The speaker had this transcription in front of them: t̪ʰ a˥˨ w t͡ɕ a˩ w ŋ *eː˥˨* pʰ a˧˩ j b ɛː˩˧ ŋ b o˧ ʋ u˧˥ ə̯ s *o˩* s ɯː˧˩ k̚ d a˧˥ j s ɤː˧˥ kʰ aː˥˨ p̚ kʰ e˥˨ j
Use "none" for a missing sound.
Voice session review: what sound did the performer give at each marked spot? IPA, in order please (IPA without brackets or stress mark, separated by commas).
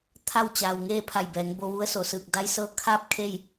eː˥˨, o˩